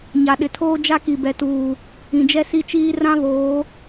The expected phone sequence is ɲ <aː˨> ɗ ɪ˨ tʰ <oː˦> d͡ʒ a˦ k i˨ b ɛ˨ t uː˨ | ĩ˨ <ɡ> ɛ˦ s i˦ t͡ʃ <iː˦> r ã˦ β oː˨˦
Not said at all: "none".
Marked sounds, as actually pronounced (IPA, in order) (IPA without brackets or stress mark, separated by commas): a˨, oː˦, d͡ʒ, iː˦